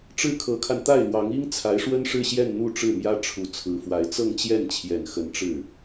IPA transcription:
ʈ͡ʂɻ̩˥˩kʰɤ˧˥kʰa˧n t̪a˥˩ɪ̯lwɑ˧˥ŋ i˥ŋ t͡sʰa˧˥ɪ̯ʂwə˥nʂɻ̩˥˧ɕjɛ˥˧n n̪u˥˧ ʈ͡ʂɻ̩˥˩mjä˥ ʈ͡ʂʰu˧˥t͡sʰɹ̩˧˥fwa˧˥ɪ̯ t͡sɤ˥˧ŋt͡ɕjɛ˥˩nt͡ɕʰjɛ˨˩n xə˧˥nʈ͡ʂɻ̩˥˩

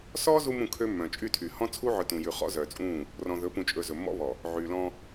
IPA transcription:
sɔː˦ zu˦mũ˦˨kʰø˦ mːœ̃˨t͡ʃʼy˦˨tʰy˨ hɔ̃˦t͡sʰu˦ʕœ˨ tũ˨jʉ˨ χɔ̰˦zœː˨t͡sʼũː˦˨ | rɔ̃˨ðɵ˨˦pũ˨t͡ʃʼɵ˨ zɵ˨mːɔ̰˦βɔ˨ | ʕyː˨lɔ̃˦

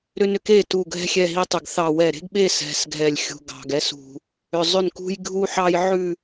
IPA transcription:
ɾʏ˦nʏ˦k e˦˨tu˨˩ ɡʱɛ̤˦xʲɛ˦˨ɦi˦tˤʏ˨˩ɡ θɑ˨˩wɛ˨˩ɾe̤˦ɡɓe˦˨ sɛ̤˨˩sɡʱɛ˨˩lʲxʲṳ˨˩ ɡɑ̤˨˩ɡɛ˦s ṳ˨˩ | ʏ˨˩zˤʏ˦˨nkṳ˦j ɡʱu˦ħɑ˦j ʕʉ˦˨

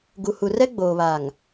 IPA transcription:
ɡu˨hu˨rɛ˦ ɡ͡boː˨βa˨ŋ

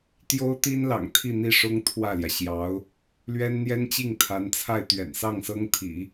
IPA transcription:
t̪jo˥ʊ̯t̪i˥nlɑ̰˨˩ŋ t̪ʰi˥˧n̪i˥˩ʂʊ˥ŋ t̪ʰwä˥˩ljä˩ɕjɑ˧˥ʊ̯ | lɥɛ˥nn̪jɛ˥nt͡ɕi˥˩ŋ t̪ʰa˧˥nt͡sʰa˥˩ɪ̯ t̪ɥɛ̰˨˩nsɑ˥˩ŋsɤ˥ŋt̪ʰḭ˨˩˦

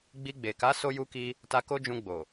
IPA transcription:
ɡ͡bi˧ɡ͡be˨ ka˨˦ so˦ju˦ki˦ | ta˧ko˦d͡ʒũ˧ ɡ͡bo˨

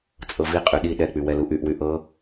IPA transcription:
t͡sʼɤviqʼy ɗi ɗɛk͡py wɛluʔyʔwy ʔɤ

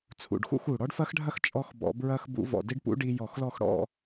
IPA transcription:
t͡sʰṵ˨˩ɖxṵ˥˧x u˨˩ɽɔ˦˥ɖfɐ˦˥xɖʱɐ˥˧x t͡ʃʼɔ˦˥xbɔ̰˧˩˧ bɹɐ˧xbṵ˧˩˧ vɔ̰˨˩ di˦˥ɖpṵ˦˥ ɖi˧ jɔ˧˩˧xlɔ˥˧xɽɔ̰˥˧

